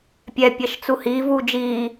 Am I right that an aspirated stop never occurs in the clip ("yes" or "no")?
yes